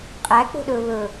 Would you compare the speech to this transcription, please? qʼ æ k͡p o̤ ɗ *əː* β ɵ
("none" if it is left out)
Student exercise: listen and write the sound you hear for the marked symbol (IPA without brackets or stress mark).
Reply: ɵː